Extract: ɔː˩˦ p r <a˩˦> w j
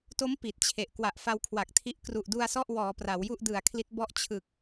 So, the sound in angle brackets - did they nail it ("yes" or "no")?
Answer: yes